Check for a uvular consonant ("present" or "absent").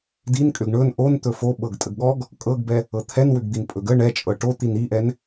absent